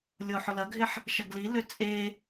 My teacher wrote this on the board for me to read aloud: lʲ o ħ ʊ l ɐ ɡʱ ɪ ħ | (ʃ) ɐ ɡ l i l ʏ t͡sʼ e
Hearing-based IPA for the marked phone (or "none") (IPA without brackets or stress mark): ʃ